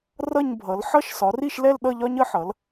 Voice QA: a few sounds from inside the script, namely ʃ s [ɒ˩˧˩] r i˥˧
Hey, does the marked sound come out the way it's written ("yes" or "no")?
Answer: no